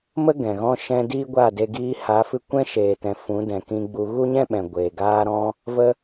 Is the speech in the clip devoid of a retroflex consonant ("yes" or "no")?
yes